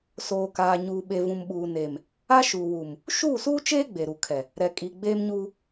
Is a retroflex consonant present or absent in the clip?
absent